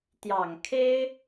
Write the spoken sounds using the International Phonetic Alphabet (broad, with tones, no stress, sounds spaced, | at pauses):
t̪ j ɑ˨˩ ŋ kʰ e˥ ɪ̯